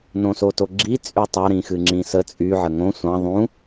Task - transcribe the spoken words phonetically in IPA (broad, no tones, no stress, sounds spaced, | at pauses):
n õ s o t o ɡ͡ǁ i t͡sʼ y tˤ ɑ ɾ ĩ x ɨ ŋ͡ǁ ĩ s ə t͡sʼ y ʕ ə ŋ õ sʷ ɑ̃ ðˤ ũ